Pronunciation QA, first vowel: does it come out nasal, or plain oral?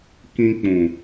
nasal